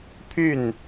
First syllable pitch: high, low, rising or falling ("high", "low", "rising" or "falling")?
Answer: falling